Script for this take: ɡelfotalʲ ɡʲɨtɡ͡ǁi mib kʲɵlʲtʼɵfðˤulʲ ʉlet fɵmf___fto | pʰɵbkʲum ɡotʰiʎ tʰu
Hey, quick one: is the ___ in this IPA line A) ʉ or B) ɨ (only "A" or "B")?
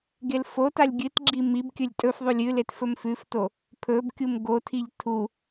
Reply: A